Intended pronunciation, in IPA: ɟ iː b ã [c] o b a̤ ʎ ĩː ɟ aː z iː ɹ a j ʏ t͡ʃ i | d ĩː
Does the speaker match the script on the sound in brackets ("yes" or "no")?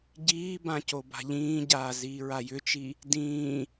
yes